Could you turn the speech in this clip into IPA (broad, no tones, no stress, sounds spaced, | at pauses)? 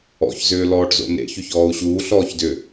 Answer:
ɔ̰ ç z ʏː l ɔː ʈ z o̰ n ḛ ç ʏ ç ɔː u̯ ɕ uː ɬ ɔː ç d ʏ